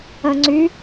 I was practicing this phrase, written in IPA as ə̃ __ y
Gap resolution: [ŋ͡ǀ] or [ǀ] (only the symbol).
ŋ͡ǀ